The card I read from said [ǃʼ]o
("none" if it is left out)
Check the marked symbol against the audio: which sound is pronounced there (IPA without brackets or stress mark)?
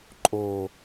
ǃʼ